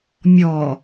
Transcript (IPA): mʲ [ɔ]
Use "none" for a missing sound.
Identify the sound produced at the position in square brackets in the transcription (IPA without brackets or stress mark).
ɔ